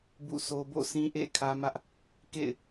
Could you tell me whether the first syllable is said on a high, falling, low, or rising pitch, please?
falling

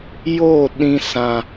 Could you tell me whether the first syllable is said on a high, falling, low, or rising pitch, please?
falling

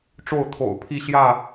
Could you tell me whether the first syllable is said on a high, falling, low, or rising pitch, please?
falling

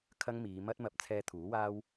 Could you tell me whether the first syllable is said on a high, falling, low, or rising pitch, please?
high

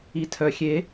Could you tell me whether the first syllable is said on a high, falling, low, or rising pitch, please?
low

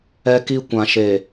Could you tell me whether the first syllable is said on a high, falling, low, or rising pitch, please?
high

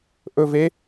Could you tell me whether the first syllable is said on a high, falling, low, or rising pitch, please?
low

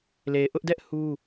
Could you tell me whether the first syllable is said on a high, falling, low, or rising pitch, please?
low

